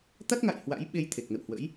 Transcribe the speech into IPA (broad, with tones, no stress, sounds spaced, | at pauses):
t̪ a˦˥ t̚ ŋ a̰˧˨ j h w a̰˧˥ j ɓ e˧ j t̪ʰ e˨˩ k̚ n ə̰˧˨ w h w ə̰˧˥ j